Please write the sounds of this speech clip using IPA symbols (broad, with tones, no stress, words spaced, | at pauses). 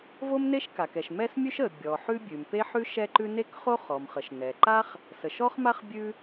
vo˥mne˥ʃ ka˩kɛ˩ʃ mɛ˥smʲʉ˥ʃə˩ bʲɔ˩ ħʉ˥bʲʉ˩m pe˥ħʉ˥ ʃɛ˥ǃʉ˥ ne˥kχo˥ χɔ˩mχə˩ʃ nɛ˩ǃa˥χ | sə˩ʃɔ˥χma˥χ bʲʉ˥